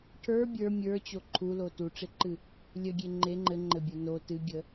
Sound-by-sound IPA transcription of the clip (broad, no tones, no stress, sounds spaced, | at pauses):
ʈʰ ə˞ bʲ ə˞ mʲ ə˞ t͡ɕ o ǃʰ u l o t u ʈ͡ʂ e ǃ ɨ | lʲ ə ɡʲ e ŋ͡ǃ e ŋ͡ǃ ɘ ŋ͡ǃ ɘ bʲ o n o t ɨ ɡʲ ə